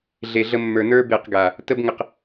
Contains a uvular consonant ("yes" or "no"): yes